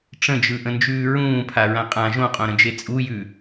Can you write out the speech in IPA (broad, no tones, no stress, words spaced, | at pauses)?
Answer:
ʈ͡ʂə̃d͡ʒɯʔə̃nd͡ʒʉː ɹũːpʰaɹã qʼã ʒõqʼõɾə̃d͡ʒe t͡sʼujʉ